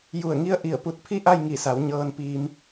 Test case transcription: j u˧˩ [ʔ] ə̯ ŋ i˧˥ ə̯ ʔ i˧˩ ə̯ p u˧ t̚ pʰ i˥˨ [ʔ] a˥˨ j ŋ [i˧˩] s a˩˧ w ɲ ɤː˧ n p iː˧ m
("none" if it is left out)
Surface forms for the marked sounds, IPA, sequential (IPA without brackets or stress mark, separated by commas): none, ʔ, i˧˩